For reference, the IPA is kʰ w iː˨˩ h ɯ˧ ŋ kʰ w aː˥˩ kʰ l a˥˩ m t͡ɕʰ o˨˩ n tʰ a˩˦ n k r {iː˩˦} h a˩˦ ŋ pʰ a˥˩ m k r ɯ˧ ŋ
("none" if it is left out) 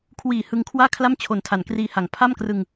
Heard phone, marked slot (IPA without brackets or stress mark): iː˧